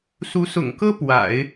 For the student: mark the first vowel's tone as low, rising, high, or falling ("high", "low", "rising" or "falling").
rising